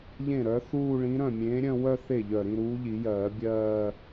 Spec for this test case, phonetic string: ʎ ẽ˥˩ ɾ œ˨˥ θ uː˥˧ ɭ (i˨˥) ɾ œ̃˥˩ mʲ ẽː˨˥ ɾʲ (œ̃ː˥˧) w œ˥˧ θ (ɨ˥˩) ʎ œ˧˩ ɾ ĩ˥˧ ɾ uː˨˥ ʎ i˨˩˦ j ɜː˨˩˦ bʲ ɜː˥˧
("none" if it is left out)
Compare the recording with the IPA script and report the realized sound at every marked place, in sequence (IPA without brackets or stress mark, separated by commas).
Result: ĩ˨˥, œ̃˥˧, e˥˩